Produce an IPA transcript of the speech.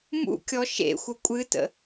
mṵkʲɔ ʃḛxʷə kʷʼɨtə̰

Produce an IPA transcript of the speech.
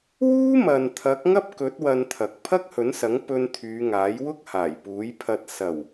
wuː˥mɐ˨n t̪ʰɐ˨˥k̚ŋɐ˥p̚kɵ˨˥t̚ wɐ˧nt̪ʰɐ˨k̚ pʰɐ˥k̚hɵ˨˥nsɐ˨˥ŋ pɵ˧n t̪ʰyː˨˧ŋaː˨˥jwʊ˥k̚ haː˨˩jpuː˨˥jpʰɐ˧t̚ sɐ˨˩w

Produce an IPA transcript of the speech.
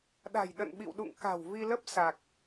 ɗa̤˨˩j ɗə̰˧˨nɓḭ˧˨wɗṵ˧˨ŋ ka̤˨˩wvi˧lə˦˥p̚ sa˨˩k̚

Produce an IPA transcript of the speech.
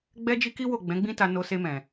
ɡ͡bɛ˦d͡ʒi˦ki˦wo˦˨ ɡ͡bɛ̃˨˦ɡ͡bĩ˦ta˧ no˧se˧mɛ̃˨

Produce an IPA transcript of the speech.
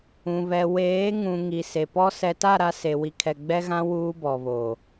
ũ˨βɛ˨ weː˨˦ ŋũ˨ ŋi˨ se˨pɔ˦ sɛ˨ta˦˨ ɾa˦se˨ wi˨kʰɛ˨ ɡ͡bɛ˦ɣã˦ wuː˦bɔ˨βoː˨

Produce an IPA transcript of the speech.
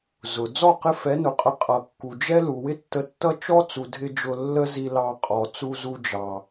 zʊ˨ d͡zɔ˦˨ qɪ˦ fɛ˨˦nʊ˨qʼə˧ qʼʌ˨kːu˨d͡ʒɛ˦ lu˨wɪ˦tːə˧tːʌ˦ t͡ʃɔ˦t͡su˨dʱɪ˧ d͡ʒʊ˧lːə˦ zi˧ lɑ˧qʼɔ˨ t͡su˧zu˧d͡ʒɑ˨

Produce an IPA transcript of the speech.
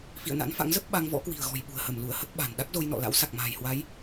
fḭ˧˨ə̯na̰˧˥nfa̰˧˥ŋzə˦˥p̚ ɓa˧ŋ vɔ̰˧˥kwi̤˨˩ə̯ɣɔ̤˨˩j ɓṳ˨˩ə̯hə˧˩mlu˧˩ə̯hə˦˥t̚ ɓa̤˨˩n ɗa˦˥k̚zo˧jnɔ̰˧˨ la̰˧˥wsa˨˩k̚ma̤ː˨˩jhwa˨˦j

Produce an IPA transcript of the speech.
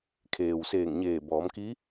kʰeː˩wseː˧˩ŋ ɲeː˧˩bɔː˩˧mki˧˥

